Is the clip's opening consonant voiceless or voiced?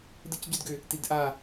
voiced